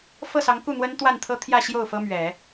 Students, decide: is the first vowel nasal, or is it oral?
oral